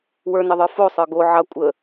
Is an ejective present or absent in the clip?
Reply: present